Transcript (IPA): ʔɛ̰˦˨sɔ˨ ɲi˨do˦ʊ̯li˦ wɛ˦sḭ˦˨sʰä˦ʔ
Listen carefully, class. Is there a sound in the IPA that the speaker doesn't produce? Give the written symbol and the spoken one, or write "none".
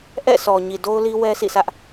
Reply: none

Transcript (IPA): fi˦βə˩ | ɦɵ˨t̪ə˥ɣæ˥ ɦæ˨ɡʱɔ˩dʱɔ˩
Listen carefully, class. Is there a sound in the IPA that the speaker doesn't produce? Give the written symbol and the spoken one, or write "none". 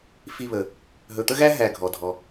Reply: none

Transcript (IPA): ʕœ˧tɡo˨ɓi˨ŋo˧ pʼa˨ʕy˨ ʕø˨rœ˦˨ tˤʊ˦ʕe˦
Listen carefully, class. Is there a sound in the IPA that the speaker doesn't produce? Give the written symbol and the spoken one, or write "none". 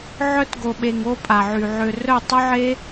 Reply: i˨ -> e˨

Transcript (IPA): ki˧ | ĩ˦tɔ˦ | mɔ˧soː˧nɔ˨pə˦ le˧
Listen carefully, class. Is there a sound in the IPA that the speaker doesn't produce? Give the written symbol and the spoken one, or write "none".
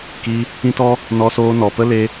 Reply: m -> n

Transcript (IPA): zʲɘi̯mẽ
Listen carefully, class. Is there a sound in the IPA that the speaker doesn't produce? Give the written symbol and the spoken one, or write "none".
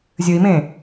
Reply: none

